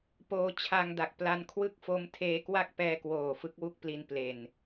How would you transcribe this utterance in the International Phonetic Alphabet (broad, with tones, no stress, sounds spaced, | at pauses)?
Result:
p oː˧ t͡ɕʰ a˧ ŋ d a˨˩ k̚ p l a˧ n kʰ w ɯ˦˥ k̚ f o˦˥ m tʰ eː˧ k w a˥˩ k̚ p ɛː˧ k w oː˨˩ f ɯ˦˥ k̚ w u˥˩ k̚ p l i˧ n p l e˨˩ n